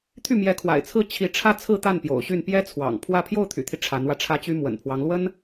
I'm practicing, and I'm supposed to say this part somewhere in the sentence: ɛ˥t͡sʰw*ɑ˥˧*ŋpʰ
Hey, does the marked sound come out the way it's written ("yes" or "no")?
no